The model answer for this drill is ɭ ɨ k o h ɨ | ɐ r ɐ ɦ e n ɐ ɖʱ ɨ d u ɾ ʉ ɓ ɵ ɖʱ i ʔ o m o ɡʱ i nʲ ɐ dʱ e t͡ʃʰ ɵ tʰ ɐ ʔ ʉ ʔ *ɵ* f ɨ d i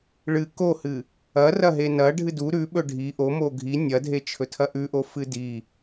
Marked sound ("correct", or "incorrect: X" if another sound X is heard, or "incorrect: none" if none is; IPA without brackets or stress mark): incorrect: o